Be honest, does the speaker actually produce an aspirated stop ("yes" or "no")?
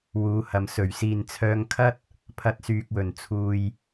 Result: yes